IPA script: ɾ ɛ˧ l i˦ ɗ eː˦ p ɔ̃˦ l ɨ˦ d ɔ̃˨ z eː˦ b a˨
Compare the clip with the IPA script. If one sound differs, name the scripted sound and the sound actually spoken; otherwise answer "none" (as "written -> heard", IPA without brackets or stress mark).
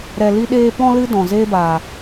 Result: none